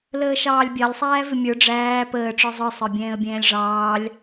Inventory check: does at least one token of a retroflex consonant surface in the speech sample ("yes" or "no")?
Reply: yes